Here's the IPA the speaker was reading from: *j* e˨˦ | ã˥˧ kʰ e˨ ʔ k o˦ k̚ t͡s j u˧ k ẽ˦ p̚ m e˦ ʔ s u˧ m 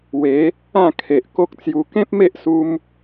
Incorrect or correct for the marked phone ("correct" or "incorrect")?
incorrect